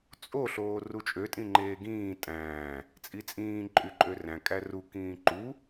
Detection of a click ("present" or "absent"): present